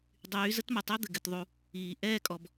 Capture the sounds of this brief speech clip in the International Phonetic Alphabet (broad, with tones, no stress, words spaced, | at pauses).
dˤyː˨˦zə˦tmə˨tˤʏː˦ d̪ɘ˨ɡɘ˧tðˤu˧ | iː˨ ʔɛː˦˨kʼɔ˨b